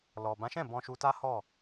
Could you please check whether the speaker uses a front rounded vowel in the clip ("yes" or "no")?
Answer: no